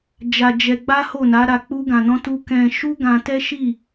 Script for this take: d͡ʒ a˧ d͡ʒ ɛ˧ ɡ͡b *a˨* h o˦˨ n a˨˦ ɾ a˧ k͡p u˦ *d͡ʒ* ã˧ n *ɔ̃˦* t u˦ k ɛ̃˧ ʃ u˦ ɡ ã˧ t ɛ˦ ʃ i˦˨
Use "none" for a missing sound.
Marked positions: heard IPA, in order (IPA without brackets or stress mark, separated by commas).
a˦, ɡ, ɔ̃˦